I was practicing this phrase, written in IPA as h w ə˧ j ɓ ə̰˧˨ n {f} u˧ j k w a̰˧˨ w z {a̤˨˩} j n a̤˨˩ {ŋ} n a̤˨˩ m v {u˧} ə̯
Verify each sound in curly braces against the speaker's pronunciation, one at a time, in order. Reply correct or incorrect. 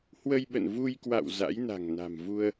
incorrect, incorrect, correct, correct

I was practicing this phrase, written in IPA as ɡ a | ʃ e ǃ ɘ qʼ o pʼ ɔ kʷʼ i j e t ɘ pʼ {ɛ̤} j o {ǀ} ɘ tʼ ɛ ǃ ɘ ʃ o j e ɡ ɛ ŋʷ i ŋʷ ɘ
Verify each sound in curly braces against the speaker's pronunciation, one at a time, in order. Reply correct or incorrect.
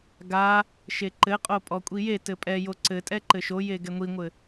incorrect, correct

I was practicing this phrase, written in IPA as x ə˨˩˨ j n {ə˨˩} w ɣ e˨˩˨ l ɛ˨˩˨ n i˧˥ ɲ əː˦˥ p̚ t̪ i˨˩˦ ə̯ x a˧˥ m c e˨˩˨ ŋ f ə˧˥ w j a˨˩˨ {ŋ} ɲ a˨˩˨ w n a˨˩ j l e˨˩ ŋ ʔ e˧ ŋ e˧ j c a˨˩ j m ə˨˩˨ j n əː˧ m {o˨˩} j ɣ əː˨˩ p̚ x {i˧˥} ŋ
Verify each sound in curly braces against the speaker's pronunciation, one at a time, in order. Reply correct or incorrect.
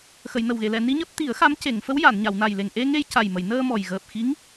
correct, incorrect, incorrect, correct

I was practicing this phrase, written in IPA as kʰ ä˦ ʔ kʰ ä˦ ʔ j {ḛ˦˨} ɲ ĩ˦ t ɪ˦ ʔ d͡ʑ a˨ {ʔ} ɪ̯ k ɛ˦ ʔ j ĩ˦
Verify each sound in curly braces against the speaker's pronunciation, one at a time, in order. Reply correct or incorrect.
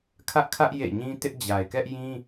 correct, incorrect

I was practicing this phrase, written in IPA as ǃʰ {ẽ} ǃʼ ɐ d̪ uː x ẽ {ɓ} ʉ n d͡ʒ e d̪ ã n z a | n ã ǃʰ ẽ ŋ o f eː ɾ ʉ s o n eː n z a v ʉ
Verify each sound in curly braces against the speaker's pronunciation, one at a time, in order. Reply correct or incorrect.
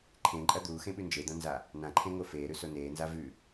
correct, correct

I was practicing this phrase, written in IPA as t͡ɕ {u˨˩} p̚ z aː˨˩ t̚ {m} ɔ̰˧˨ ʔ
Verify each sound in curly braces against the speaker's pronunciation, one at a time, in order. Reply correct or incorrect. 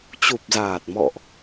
correct, correct

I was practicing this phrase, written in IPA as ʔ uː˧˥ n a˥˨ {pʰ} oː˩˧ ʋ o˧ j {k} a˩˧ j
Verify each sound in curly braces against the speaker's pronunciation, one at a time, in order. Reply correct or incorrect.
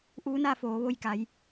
incorrect, correct

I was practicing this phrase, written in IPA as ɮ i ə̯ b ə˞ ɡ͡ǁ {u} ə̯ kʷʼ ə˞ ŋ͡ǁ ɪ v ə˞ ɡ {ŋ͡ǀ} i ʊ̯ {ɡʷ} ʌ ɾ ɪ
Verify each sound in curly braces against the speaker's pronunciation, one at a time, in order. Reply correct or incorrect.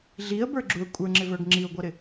correct, incorrect, correct

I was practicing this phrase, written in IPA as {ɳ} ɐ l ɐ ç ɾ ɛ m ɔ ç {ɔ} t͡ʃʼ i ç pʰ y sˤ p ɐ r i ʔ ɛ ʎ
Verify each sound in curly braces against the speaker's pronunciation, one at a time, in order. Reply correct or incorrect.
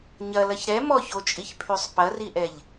incorrect, incorrect

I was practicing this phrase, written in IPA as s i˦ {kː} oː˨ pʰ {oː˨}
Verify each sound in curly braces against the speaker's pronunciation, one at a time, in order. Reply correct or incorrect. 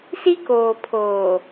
incorrect, correct

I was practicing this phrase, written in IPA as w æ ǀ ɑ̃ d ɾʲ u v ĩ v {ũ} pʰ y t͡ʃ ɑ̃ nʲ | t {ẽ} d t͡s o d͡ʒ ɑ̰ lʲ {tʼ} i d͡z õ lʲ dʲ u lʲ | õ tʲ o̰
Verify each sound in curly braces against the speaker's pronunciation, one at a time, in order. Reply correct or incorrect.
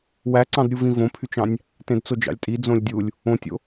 incorrect, correct, correct

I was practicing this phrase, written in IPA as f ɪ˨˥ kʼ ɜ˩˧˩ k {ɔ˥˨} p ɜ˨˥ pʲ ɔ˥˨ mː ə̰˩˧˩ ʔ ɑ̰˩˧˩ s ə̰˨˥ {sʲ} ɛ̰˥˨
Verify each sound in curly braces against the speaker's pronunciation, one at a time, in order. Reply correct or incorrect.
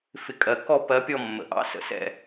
correct, incorrect

